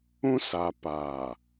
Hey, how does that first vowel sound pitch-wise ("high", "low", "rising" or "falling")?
high